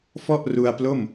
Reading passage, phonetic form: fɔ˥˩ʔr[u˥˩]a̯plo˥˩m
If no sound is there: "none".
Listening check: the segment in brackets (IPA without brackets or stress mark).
u˧